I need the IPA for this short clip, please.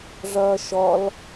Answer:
ʐ ʌː ʃ ɔ l

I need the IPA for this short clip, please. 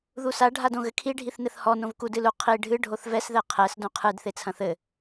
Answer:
ð u s a ɖʱ a d õ ɣ ɘ kʰ i ɖʱ i θ n ɘ θ h ɔ n õ v k u d ɨ l u qʰ i ɖʱ ɨ ɖʱ o θ v ɛ s ð ɛ qʰ ɛ s d õ qʰ ɨ d θ e t͡sʰ ɐ̃ θ ɘ

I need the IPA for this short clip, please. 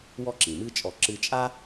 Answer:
w ɔ˥ ǁ ĩ˩ m ɨ˥ t͡ʃʼ ɔ˧ ǁ ɨ˧ t͡ʃʼ a˥

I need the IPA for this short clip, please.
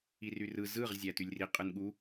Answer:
i r y r ɯ z ɯ ʁ zʲ æ t y lʲ r i qʼ ɯ n ɠ u

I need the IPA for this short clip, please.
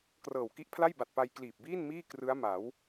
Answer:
k r ɤː˨˩ w k i˦˥ ʔ pʰ l a˥˩ j b a˨˩ t̚ p a˧ j k l iː˨˩ p̚ b iː˥˩ n m iː˥˩ k r ɯ˦˥ a̯ m a˩˦ w

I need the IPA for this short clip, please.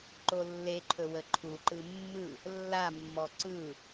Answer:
ǃ o lː e ǃʰ ɵ w ə ǃʰ u ǃ ɯ mː ɯ | lː a mː ɔ ǀ ɯ

